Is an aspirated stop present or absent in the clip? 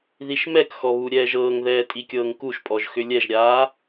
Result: absent